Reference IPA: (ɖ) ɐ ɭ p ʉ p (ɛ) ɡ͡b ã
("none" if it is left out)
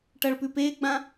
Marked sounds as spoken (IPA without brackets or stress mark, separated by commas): ʈ, e